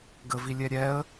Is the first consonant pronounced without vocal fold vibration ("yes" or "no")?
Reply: no